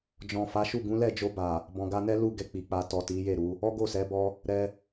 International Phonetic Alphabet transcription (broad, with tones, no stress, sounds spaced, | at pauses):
d͡ʒ ɔ̃˨ f a˨˦ ʃ u˦˨ ɡ ũ˨˦ l ɛ˦˨ d͡ʒ o˧ b a˨ | b ɔ̃˨ ɡ a˧ n ɛ˦ l u˦˨ ɡ ɛ˧ k͡p i˨ k͡p a˧ t ɔ˨ t i˨˦ j e˦˨ ɾ u˨˦ | ɔ˦ ɡ o˦˨ s ɛ˨˦ b ɔ˦ | ɾ ɛ˧